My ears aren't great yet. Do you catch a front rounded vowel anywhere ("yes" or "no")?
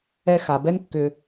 yes